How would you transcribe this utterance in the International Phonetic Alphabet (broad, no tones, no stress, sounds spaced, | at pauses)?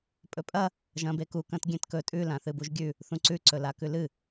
pʼ ɵ pʼ ɐ | ʒ ɐ̃ b e k u k ɐ̃ t ɡʲ ẽ t k ɵ tʼ ʉ l ã θ ɨ b u ʒ ɡʲ ʉ | θ ũ ǀ ʉ ǀ ɵ l a k ʉ l ɨ